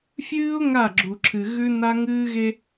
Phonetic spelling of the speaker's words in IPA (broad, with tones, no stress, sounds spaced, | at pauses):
fʲ ɨː˦ ʊ̯ ŋ a˦˨ ɡ͡ǁ u˨ ǁʰ ɨ˨ ɣ ʉ˦ n a˦ ŋ ɨː˦ ɣ e˦